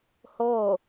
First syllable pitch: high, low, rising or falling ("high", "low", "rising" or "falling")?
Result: falling